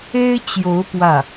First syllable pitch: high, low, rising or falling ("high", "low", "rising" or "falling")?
high